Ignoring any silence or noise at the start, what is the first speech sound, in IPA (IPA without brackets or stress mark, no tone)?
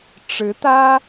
ʈ͡ʂ